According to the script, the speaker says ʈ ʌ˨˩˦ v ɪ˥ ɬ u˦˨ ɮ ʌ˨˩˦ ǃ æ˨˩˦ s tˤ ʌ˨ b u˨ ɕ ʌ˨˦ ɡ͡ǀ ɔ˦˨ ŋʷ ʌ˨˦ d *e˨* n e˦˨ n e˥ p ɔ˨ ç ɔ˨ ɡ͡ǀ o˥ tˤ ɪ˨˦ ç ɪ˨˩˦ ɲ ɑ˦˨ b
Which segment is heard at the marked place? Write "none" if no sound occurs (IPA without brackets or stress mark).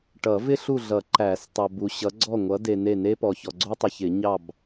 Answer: e˨